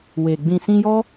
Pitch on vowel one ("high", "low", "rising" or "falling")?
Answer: low